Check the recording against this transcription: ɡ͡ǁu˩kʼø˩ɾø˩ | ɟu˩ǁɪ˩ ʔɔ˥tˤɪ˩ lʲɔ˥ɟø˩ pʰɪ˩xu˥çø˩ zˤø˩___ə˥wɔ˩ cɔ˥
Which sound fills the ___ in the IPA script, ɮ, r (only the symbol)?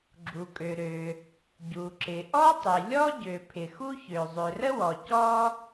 r